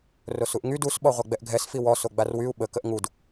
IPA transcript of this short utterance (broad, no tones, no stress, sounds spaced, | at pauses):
r o s u ʔ ŋ y d u s ɓ ɔ ʁʷ a ɡ͡b ɛ ʔ ɡʱ ɛ s f i w ɔ s o ɡ͡b a r w y u̯ ɓ ə k ə ʔ ŋ u d